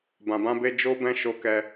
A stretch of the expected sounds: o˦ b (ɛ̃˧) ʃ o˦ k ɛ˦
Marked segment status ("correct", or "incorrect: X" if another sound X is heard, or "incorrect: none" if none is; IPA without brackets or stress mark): incorrect: ɛ̃˦